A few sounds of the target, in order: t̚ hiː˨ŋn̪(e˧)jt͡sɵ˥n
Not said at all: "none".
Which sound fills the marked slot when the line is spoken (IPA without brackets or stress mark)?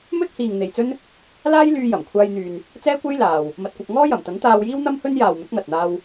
e˨